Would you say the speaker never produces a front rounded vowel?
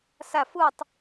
yes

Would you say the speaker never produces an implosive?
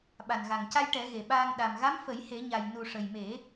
no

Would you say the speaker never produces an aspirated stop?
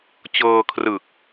no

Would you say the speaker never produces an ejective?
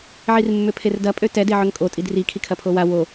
no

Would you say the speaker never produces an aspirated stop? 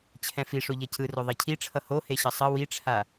no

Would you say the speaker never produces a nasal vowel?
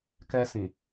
no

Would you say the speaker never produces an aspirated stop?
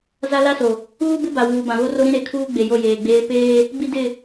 no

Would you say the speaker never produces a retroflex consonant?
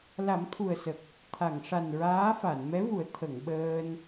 no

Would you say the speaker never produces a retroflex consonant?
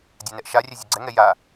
yes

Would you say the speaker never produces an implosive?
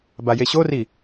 yes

